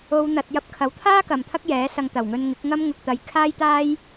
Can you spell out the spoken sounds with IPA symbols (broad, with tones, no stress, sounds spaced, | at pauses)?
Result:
o˨˧ w n̪ ɐ˨ t̚ j ɐ˧ p̚ kʰ ɐ˨˥ w t̪ʰ aː˥ k ɐ˨ m t̪ʰ ɐ˥ k̚ j ɛː˨˥ s ɐ˧ ŋ t̪ ɐ˨˩ w ŋ ɵ˧ n ŋ ɪ˨˥ k̚ ŋ ɐ˥ m ŋ ʊ˧ k̚ t̪ ɐ˧ j kʰ aː˥ j t̪ aː˥ j